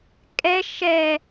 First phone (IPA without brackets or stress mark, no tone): kʼ